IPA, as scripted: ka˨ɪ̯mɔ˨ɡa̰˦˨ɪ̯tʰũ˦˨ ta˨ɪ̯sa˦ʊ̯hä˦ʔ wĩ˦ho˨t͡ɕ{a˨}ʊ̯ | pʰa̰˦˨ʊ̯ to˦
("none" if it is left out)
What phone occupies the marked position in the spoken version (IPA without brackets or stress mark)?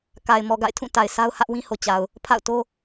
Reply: a˨